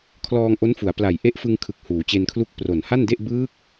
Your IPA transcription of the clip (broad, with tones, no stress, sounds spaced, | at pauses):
kʰ l ɔː˧ ŋ ʔ o˦˥ n f u˩˦ a̯ p l a˨˩ j ʔ e˦˥ ʔ f ɯ˧ ŋ kʰ ɯ˨˩ k̚ h uː˩˦ t͡ɕ e˧ n kʰ l u˥˩ k̚ p r o˨˩ n h a˥˩ n d e˥˩ ʔ b ɯː˦˥ k̚